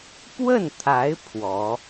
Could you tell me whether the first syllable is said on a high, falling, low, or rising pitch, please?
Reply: falling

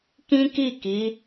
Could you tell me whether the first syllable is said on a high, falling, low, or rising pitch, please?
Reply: high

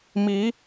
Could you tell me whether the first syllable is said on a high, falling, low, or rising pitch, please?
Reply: rising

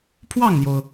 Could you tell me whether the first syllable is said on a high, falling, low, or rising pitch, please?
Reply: falling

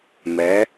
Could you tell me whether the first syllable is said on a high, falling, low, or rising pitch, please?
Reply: rising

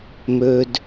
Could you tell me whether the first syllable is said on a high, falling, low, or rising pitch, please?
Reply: low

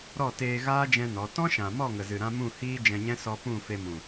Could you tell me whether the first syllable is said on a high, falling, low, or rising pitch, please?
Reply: falling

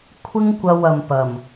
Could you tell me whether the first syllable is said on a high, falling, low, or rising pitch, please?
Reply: high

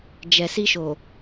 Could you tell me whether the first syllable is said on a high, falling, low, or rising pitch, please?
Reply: low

